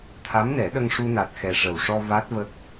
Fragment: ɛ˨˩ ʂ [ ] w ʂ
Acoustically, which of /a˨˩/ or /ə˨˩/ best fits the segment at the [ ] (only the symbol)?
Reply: ə˨˩